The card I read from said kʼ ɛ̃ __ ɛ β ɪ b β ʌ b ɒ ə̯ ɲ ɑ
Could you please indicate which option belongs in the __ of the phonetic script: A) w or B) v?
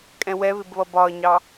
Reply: A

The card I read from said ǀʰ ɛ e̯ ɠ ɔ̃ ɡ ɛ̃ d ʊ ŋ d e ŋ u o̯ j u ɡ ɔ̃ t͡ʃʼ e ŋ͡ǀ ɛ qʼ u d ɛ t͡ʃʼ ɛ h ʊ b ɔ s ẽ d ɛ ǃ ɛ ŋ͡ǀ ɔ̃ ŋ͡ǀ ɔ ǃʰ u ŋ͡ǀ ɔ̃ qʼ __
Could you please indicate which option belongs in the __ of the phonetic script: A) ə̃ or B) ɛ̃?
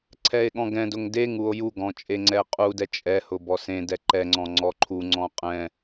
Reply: B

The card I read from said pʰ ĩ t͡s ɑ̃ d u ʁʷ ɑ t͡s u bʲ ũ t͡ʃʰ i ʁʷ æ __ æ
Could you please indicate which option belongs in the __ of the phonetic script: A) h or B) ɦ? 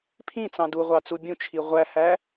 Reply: A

